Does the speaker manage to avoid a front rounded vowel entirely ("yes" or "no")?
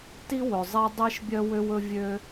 no